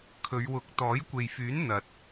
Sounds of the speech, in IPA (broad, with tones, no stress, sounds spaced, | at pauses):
kʰ ɵ˨˧ ɥ w ʊ˨˥ k̚ t̪ ɔː˨˥ j kʷ e˨ j f yː˨˥ n n̪ ɐ˨ t̚